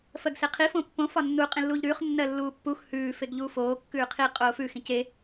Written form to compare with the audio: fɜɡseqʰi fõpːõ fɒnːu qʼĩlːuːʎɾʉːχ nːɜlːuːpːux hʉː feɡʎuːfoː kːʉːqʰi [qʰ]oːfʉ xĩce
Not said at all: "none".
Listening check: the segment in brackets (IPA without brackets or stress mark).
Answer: qʼ